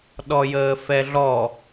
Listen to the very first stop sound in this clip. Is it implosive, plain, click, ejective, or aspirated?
implosive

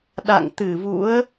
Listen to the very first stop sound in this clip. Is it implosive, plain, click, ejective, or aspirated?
implosive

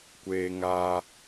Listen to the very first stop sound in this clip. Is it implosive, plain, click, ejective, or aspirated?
plain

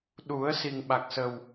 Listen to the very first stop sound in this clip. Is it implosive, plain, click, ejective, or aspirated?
implosive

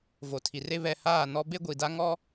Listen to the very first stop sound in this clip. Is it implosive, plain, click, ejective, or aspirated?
aspirated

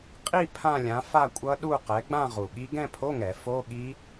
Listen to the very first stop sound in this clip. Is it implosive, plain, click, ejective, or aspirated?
ejective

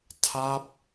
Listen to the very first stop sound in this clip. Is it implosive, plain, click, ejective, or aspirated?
aspirated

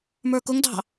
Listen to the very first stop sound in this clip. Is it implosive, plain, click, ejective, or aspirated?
plain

